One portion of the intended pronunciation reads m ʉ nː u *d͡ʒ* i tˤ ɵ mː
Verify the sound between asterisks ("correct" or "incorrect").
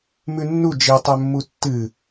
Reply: correct